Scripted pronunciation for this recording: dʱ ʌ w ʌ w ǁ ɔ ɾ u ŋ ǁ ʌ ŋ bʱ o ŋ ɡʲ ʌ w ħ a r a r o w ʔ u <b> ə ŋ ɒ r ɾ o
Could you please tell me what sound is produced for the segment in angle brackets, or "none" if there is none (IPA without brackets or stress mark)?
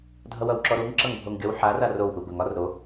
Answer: b